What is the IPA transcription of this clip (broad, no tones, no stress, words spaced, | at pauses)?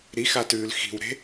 ɾixatʉːl xi̤wɾe̤